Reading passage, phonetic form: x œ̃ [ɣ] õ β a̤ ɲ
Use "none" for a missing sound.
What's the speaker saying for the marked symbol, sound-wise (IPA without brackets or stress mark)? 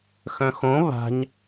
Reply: x